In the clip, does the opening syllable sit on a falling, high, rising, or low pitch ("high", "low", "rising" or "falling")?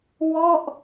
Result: falling